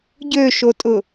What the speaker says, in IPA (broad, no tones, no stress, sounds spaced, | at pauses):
ɟ ø ʃ o tʼ ʊ